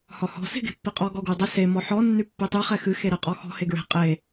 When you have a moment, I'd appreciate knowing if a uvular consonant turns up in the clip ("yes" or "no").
yes